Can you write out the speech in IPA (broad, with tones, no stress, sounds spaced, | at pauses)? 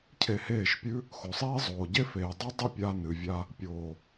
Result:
cʰ e˧ h eː˦˨ ʃ pʲ ʉ˦ | x o˨ sˤ iː˦ zˤ oː˨ ɟ e˦ f eː˨ dˤ ʉ˦ dˤ ɨ˦˨ pʲ a˧ n ɨ˨ vʲ a˧ | pʲ oː˨